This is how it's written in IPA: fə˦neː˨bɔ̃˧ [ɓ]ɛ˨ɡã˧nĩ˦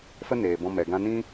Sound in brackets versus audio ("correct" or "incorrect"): incorrect